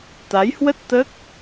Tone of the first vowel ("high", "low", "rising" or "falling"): rising